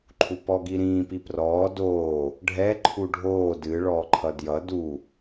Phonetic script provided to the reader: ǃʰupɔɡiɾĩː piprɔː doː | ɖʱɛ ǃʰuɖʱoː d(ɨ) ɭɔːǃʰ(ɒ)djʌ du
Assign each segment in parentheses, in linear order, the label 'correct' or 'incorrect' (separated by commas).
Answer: correct, incorrect